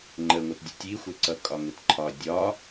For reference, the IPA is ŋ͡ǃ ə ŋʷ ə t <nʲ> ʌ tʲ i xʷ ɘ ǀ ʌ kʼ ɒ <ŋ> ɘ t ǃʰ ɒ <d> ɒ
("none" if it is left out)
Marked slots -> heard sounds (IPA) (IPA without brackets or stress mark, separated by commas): dʲ, ŋ, dʲ